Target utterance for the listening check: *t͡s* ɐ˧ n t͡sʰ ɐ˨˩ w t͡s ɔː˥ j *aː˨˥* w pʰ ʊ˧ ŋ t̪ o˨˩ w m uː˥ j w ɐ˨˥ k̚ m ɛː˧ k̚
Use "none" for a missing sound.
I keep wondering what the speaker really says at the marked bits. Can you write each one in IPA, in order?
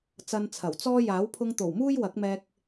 t͡s, aː˨˥

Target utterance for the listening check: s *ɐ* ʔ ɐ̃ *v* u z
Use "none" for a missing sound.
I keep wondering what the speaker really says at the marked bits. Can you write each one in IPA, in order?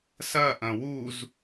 ɐ, w

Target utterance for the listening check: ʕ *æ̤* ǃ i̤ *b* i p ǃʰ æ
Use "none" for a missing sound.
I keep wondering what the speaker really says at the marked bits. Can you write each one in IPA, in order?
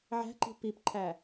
æ̤, p

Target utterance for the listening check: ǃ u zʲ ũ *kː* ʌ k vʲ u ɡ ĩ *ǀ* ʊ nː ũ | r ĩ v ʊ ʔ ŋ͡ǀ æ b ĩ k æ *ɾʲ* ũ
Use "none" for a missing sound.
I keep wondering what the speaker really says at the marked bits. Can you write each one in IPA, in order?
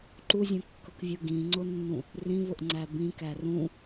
kː, ŋ͡ǀ, r

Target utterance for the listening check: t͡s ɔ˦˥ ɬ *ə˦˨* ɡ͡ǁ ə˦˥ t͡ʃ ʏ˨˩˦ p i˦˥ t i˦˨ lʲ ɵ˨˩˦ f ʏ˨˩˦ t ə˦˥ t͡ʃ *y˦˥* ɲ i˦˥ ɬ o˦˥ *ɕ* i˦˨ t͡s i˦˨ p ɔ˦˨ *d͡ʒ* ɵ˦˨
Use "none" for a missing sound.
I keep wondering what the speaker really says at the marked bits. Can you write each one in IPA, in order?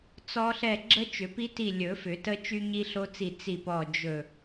ɛ˦˨, y˦˥, t͡s, d͡ʒ

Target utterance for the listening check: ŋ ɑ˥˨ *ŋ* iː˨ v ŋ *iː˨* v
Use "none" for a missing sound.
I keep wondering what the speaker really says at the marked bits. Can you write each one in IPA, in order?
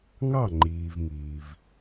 ŋ͡ǃ, iː˨

